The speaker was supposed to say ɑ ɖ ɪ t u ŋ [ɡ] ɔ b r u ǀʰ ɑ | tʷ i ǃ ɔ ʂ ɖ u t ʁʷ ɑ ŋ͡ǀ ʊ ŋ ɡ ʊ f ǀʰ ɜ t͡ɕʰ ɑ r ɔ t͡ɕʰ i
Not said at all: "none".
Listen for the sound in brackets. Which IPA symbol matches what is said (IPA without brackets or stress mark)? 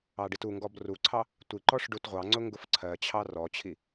ɡ